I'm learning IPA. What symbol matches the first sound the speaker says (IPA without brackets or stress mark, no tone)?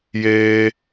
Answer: j